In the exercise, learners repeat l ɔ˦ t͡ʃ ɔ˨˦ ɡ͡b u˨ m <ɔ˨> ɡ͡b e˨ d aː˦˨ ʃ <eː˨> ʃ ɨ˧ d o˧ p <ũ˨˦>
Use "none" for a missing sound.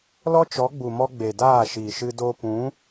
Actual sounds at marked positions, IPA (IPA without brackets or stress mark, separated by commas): ɔ˧, iː˨, ũ˨˦